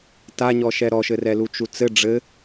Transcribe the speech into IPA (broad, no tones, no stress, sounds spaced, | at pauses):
t a ɲ ɔ ʃ ɛ ɾ ɔ ʃ ɘ r ɛ l u t͡ʃ u t͡s ɘ ɖ͡ʐ ɘ